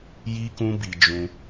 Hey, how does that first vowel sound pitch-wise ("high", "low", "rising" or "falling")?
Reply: high